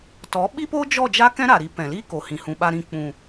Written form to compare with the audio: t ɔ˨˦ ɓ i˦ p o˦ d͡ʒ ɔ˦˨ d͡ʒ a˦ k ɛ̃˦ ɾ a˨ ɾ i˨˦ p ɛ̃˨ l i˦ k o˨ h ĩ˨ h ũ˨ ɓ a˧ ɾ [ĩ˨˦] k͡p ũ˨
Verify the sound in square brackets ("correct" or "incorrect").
incorrect